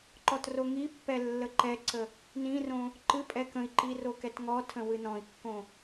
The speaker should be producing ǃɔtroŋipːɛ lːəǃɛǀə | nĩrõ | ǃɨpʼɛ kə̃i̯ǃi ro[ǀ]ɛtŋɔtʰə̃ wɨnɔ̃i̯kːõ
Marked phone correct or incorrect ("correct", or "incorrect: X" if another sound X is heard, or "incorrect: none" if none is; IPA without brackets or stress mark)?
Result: incorrect: k